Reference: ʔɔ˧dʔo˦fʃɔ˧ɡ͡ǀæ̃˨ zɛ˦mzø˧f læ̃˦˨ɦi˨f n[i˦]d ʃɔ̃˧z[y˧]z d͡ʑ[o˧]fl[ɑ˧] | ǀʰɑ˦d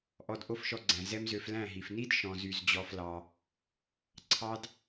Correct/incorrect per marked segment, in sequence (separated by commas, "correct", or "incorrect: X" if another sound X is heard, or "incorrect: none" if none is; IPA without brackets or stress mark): correct, correct, incorrect: ɔ˧, correct